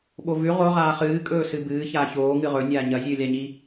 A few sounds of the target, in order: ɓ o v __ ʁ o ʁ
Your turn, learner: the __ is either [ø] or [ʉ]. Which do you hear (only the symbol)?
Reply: ʉ